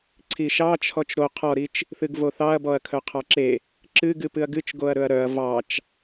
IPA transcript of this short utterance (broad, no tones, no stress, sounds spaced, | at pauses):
ǀʰ i ʃ ɑ t͡ʃʰ ɔ t͡ʃ ɾ o qʰ ɔ ɾ i t͡ʃ | θ ɨ ɡ v o θ ɑ ɐ̯ b ɔ ɐ̯ kʰ œ qʰ ɑ ǁ e | ǁ ɨ ɡ ɨ p ɨ ɐ̯ ɡ ɨ t͡ʃ ɡ o ɐ̯ ɾ ɵ ɐ̯ ɾ œ ɐ̯ v ɑ t͡ʃ